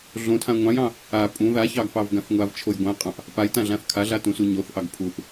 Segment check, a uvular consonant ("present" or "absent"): present